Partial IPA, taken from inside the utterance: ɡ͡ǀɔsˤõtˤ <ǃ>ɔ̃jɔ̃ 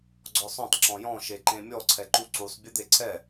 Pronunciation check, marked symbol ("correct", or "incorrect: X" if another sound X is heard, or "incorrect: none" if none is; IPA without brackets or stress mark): incorrect: ǁ